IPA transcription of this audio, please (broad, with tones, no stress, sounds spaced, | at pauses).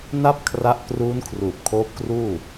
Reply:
n a˥˩ p̚ kʰ r a˦˥ ʔ k r uː˦˥ n kʰ r uː˨˩ p̚ kʰ oː˦˥ p̚ k r uː˥˩